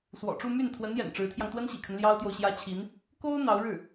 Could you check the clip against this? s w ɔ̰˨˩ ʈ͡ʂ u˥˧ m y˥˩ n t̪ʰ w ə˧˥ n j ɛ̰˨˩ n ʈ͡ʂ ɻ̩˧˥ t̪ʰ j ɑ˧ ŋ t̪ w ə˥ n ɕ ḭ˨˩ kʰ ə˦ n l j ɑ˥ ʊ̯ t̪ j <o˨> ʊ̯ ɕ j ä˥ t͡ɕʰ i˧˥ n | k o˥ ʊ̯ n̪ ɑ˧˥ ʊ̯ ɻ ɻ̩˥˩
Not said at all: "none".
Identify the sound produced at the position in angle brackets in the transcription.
o˨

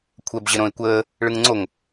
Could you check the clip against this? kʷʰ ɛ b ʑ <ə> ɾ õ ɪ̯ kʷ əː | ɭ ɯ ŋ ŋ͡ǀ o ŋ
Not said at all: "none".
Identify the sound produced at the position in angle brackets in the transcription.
ə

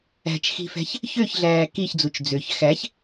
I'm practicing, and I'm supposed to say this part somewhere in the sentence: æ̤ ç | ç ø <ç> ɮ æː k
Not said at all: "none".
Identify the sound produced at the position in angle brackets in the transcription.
ç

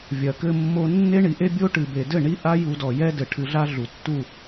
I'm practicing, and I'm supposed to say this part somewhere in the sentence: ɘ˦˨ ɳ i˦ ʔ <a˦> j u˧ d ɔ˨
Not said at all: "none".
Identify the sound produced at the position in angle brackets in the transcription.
a˦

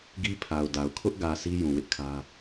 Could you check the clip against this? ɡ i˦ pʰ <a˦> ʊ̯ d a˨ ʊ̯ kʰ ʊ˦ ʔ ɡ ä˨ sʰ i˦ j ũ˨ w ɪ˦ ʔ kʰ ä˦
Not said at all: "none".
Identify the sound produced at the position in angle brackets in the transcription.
a˨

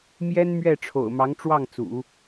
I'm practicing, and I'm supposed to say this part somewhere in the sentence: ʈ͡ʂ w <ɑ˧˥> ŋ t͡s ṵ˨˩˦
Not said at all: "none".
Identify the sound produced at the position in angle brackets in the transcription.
ɑ˥˩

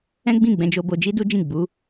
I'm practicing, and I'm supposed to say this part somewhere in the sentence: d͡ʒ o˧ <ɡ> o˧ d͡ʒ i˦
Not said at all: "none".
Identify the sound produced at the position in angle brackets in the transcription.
b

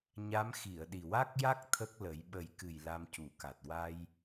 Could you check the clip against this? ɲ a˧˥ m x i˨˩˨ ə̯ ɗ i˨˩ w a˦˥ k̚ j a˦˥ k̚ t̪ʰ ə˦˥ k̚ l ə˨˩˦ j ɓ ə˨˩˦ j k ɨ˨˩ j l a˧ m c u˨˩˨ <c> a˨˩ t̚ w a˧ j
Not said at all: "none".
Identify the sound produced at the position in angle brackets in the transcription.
k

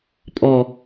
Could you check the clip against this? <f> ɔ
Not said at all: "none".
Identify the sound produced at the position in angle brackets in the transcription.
pʼ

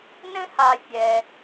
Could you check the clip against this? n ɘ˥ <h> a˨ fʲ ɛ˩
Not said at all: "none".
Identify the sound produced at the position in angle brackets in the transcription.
h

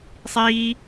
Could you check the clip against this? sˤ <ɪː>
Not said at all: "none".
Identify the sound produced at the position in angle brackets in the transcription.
iː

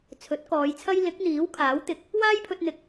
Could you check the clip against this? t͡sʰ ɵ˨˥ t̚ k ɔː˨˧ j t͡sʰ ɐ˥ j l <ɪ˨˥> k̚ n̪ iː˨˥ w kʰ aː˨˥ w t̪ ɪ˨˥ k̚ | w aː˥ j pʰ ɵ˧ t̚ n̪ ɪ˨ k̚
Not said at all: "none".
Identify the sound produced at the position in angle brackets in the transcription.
ɪ˨˥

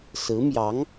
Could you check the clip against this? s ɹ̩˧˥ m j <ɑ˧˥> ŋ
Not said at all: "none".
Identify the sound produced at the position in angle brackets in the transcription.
ɑ˧˥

